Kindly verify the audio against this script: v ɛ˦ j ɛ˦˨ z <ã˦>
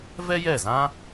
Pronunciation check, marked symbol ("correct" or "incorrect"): correct